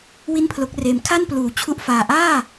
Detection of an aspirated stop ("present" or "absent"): present